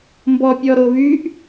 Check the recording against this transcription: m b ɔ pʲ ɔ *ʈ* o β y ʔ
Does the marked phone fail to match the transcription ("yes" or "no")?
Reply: yes